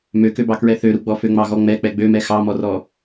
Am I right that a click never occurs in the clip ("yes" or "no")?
yes